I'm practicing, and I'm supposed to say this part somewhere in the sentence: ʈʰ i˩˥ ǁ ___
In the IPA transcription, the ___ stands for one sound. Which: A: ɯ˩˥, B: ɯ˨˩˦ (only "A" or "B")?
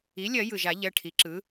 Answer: A